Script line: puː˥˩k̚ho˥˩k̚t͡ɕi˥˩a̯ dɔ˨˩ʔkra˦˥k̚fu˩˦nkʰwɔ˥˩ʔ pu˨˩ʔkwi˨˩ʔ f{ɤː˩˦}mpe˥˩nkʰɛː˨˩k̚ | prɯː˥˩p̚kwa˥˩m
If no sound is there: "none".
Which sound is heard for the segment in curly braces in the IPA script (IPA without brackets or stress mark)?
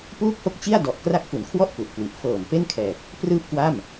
ɤː˨˩